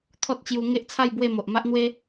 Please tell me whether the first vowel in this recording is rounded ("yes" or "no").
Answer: yes